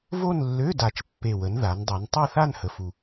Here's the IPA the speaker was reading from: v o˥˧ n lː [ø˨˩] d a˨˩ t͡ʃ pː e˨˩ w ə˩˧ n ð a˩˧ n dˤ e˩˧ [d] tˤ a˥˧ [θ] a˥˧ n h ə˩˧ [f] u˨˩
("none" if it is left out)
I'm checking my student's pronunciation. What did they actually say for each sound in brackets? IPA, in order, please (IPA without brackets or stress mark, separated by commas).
ø˧˥˧, n, θ, f